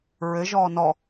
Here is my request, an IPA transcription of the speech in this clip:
ɹ ɘ ʒ ɔː n ɔ

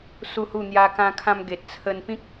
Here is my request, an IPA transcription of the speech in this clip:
s u˥˧ h u˥˧ n̪ j a˦ k ã˧ kʰ ã˧ m ɡ e˨ t̚ t͡sʰ ə˧ n p ĩ˦ k̚

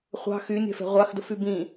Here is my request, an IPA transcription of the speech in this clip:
χʷ ɑ̤ x y nʲ ɛ̤ f ɛ̤ ʁʷ ɑ x d ə f y b ĩ

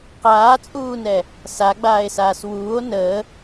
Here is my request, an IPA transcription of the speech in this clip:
q aː t͡sʼ uː n ɛ | s a ɡ͡b aː e̯ s aː s w uː o̯ n əː

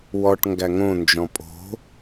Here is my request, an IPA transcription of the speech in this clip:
w ɔ ʈ ŋ ɡ æ ŋ õ n d͡ʒ ɔ̃ pʼ o̤

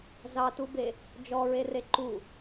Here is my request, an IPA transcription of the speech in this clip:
z ɑ t u b e | d͡ʒ ɔ ɹ e r e ǃ u

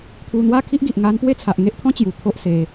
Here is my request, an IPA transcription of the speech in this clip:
t̪ʰ u˧ n̪ w a˦ kʰ i˦ ʔ ɡ i˨ ʔ ŋ a˧ n p w e˦ t͡sʰ a˨ ʔ ŋ e˦ ʔ t̪ʰ ɔ̃˦ t͡ɕ j u˨˩ t̪ʰ o˦ ʔ s e˧

